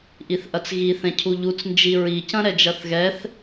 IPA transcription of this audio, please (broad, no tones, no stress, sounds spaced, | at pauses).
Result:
ʔ i θ ʔ ɐ t͡s ɣ i θ ɛ̃ cʰ u ʎ u t͡s n d͡ʒ i ɹ i c ɐ̃ ɾ ɛ d͡ʒ ɐ θ ɣ ɛ θ